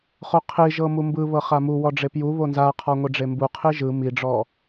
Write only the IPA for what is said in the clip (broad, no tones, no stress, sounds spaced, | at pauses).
χ o qʰ i ʒ ɤ m u m b ɯ β ɤ χ a m u w ɔ ɖ͡ʐ e p j u β o n z a qʰ ɔ ŋʷ i ɖ͡ʐ e m b u qʰ i ʒ ɯ m i ɖ͡ʐ ɔ